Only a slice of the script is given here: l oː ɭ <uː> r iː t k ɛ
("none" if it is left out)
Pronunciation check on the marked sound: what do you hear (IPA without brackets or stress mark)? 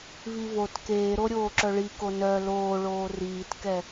oː